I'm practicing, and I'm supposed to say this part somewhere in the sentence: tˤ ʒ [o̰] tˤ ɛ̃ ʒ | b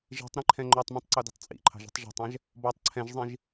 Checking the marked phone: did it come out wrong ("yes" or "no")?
yes